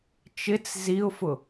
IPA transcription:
t͡ʃ ɪ t͡s z i ʊ̯ f ʊ

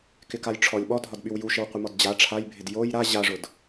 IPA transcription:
k ɪ k a j ʈ͡ʂʰ ɔ lʲ ɓ ɔ dʱ ɒ d ɓ y w j u ʃ ɪ w qʷ ɪ m ɔ d d͡ʑ a ʈ͡ʂʰ a j bʱ ɪ d j o j ɾ a ʑ a ʐ ʊ d

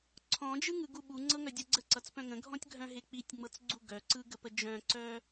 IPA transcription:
ǀʰ ɔ̃ d͡ʒ ɯ ŋ ɯ ɡ u ɓ u ŋ͡ǀ ɤ ŋ œ dʲ ʌ ɡ͡ǀ ə ǀ ʌ t͡s p œ̃ ŋ ə̃ ɡʱ ɔ̃ tʲ ɡʱ œ̃ ɦ e k͡p i tʲ ŋ͡m ɤ t͡s ɡ͡ǀ u ɡ œ ǀ ɯ ɡ ə p ə d͡ʒ œ̃ ǀ œ

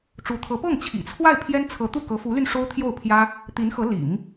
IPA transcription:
ʈ͡ʂ u˧˥ t̪ʰ ɤ˧˥ p ɤ˥˩ ŋ t͡ɕʰ ḭ˨˩ t͡sʰ w a˥˩ ɪ̯ pʰ j ɛ˥ n t͡sʰ ɤ˧˥ t̪ u˥˩ k ɤ˧˥ f u˧˥ l y˧ n ʂ o˥ ʊ̯ t̪ʰ j o˥˩ ʊ̯ pʰ j ä˥ | t̪ i˧˥ n x ɤ˧˥ l ḭ˨˩˦ ŋ

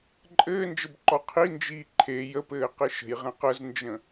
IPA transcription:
ǃʼ ɘː n d͡ʒ ə b ǃ ɔ qʰ i n d͡ʒ iː ǃʰ e j ə p ɘː q ɘ ʃ ə̤ j ʁ ɛ̃ q ə z n d͡ʒ ə̃

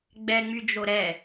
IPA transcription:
ɡ͡b ɛ ŋ͡m y d͡ʒ o ɾ ɛ

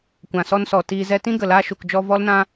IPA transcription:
kʷ ã˨ s ɔ˧ n s ɔ˨ t iː˧ z ɛ˦ t ĩ˦ ɡ ə˨ l aː˧ ʃ u˨ k d͡ʒ ɔ˧ v ɔ˦ l n ã˦

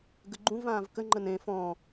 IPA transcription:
ɡ ə ɡ͡ǃ ũ v ãː v k ə ŋ͡ǃ ə n ẽ f ɔ̃

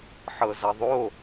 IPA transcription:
ħ ɤ z ɐ ðˤ o

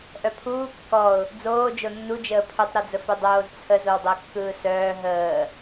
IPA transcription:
ʔ œ pʰ uː kː ɔ ʊ̯ | d͡z oː d͡ʒ o nː u d͡ʒ əː pʰ ɵ tˤ ɾ ɔ d͡z ə f ɵ dˤ oː z t͡sʰ ə z o w dˤ ə ʊ̯ kː ɯː s œː ɦ əː

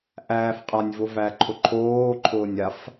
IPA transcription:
ʔ æː f qʼ a nʲ v ʊ v æ ǃʰ ʊ ǃʰ oː ǃʰ ʊː nʲ a f

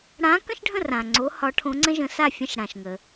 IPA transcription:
ɽ ã˧˥ k ə̃˥ ʃ ɖʱ ə̃˥˨ r ã˨ ŋ͡ǀ o˧˥ h ɒ˧˥ ʈʰ õ˧˥ ŋ͡ǀ ə̃˥ ʒ ə̃˧˥ s a˥˨ fʲ ə̃˥ ʃ ɽ ã˨ ʃ ŋ ə˨

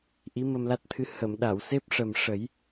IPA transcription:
ʔ i˧˥ m ə˧ m l a˦˥ t̚ t̪ʰ ɨ˧˥ h ə˨˩˨ m ɗ a˨˩˨ w s e˦˥ p̚ ʂ ə˨˩ m ʂ ə˨˩˦ j

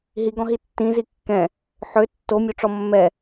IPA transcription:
ɦ i ɡ ɔ̃ ɦ i tː ĩ z i kː ɛ̃ | ħ ø tː o mʲ o ʈ͡ʂ ɔ mː ɛ

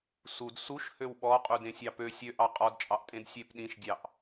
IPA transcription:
s u d s u ʃ h ø w ɓ ɔ qʼ u d ẽ sʲ ɑ p ø sʲ ø ʔ ɑ qʼ ɔ d t͡ʃʼ ɑ ʔ tʼ ẽ d sʲ e p ɗ ĩ ʃ dʲ ɑ ʔ

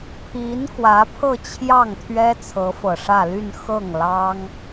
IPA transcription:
pʰ i˧˥ n k w ä˧˥ pʰ ɤ˥˧ t͡ɕʰ j ɑ˥˩ ŋ t̪ʰ ɥ ɛ˥ t͡sʰ ɤ˧˥ f ɤ˨˩ ʂ ä˥˧ l y˥˧ n x ɤ˥˩ ŋ l ɑ˥ ŋ

